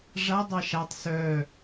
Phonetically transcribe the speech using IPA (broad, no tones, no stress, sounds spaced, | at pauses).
ʐ a dˤ ɑ ʃ a tˤ s œ